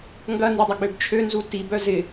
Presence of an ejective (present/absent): absent